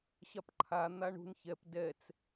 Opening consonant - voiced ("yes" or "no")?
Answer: no